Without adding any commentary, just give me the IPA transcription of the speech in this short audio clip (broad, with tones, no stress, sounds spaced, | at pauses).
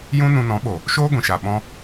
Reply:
j ũ˦ n ũ˧ n ɔ̃˨˦ ɓ o˨ | ʃ oː˦ ɡʷ ĩ˨ ʃ a˨ ɓ ɔ̃˧